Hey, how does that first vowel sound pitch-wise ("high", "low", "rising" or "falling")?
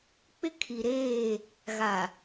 high